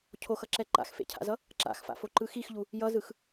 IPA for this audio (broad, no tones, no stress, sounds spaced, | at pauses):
cʰ o x ʌ ǁ ɛ ǃ a̰ x f ḛ cʰ a̰ z ʌ | ǁ a̰ x f a̰ f o ǃ ɯ x i x ʎ u | j ʌ z ɯ x